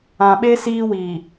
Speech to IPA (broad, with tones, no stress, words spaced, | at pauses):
ã˨ɓe˦ siː˦wi˨